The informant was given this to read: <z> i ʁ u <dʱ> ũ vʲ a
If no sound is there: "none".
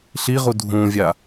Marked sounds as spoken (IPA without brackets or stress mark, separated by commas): ɬ, dʱ